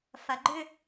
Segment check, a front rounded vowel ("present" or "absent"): present